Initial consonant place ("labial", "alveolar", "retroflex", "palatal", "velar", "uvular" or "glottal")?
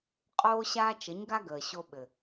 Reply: uvular